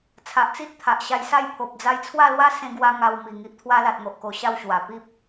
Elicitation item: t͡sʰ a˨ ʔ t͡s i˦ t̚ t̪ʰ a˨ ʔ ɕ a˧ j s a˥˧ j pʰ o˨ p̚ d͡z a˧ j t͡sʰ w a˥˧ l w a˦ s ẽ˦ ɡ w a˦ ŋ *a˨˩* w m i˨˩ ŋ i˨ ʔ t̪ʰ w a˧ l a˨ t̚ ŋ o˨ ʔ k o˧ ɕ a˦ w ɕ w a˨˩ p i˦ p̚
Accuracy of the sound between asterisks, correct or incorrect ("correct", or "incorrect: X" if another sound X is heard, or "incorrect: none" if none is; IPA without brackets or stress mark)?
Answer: incorrect: a˧